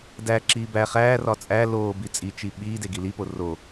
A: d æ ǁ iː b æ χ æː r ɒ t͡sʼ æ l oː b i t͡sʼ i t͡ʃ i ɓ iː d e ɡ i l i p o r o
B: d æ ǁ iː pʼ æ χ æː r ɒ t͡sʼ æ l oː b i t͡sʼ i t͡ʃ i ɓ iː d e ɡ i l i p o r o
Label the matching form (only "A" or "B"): A